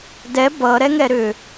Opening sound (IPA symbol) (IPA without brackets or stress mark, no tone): d